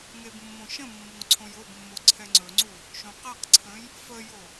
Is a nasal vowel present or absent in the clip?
present